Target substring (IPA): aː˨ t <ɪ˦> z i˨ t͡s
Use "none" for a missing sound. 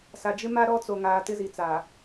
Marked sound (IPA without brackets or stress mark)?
ɪ˦